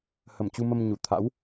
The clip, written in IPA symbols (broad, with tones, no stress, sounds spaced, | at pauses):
h ə˧˩ m t͡ɕ u˧ m ə˧ m ɲ u˧˩ t̪ʰ a̰˧˥ w